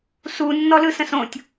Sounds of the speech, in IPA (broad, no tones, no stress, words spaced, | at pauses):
su nːɔlɯsə̃sõtʲ